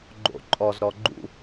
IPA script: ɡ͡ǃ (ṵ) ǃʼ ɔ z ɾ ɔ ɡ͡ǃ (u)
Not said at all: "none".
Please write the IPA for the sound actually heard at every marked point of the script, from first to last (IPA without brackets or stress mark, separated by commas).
o̰, ṵ